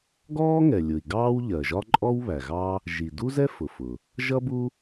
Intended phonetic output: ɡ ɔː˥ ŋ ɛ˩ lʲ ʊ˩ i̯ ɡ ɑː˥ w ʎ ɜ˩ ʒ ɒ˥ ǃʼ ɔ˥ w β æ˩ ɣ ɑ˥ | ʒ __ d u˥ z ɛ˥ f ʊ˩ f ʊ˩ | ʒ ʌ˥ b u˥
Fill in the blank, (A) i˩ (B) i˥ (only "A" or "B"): A